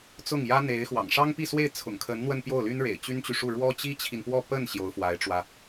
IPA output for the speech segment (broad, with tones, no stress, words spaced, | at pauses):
t͡sʊ˥˩ŋjä˥n̪e˧˥ɪ̯xwɑ̰˨˩ŋ ʂɑ˥ŋpi˥˧swe˥˩ɪ̯ t͡sʰʊ̰˨˩ŋkʰə˧˥nn̪wə˥˧n pjo˥˩ʊ̯ly˥nɻḛ˨˩ɪ̯ t͡ɕy˥nt͡ɕy˨ʂu˥˩ ɻwɔ˥t͡ɕi˥t͡ɕʰi˨npwɔ˥˧ pə˥˩n ɕjo˧˥ʊ̯fwa˧˥ɪ̯ʈ͡ʂwä˧